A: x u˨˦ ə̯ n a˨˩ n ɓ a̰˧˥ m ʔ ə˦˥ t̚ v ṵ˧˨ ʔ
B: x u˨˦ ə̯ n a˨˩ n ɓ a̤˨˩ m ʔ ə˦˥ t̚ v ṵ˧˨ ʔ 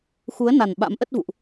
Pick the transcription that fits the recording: A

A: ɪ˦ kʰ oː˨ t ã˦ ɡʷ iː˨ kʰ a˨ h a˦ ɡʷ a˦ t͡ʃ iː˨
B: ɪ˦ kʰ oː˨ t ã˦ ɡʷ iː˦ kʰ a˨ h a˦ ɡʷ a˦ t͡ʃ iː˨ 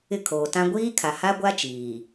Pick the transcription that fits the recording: B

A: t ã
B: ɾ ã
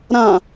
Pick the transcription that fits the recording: B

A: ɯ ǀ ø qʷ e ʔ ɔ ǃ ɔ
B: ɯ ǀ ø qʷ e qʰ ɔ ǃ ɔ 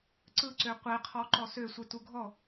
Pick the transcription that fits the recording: B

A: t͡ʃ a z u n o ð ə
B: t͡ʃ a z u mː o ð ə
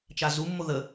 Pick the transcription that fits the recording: B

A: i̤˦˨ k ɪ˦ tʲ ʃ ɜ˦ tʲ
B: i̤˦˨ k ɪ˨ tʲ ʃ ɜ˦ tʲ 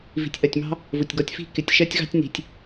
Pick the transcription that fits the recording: B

